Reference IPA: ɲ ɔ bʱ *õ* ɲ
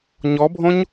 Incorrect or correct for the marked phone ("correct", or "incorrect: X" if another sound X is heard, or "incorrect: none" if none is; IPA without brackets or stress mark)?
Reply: correct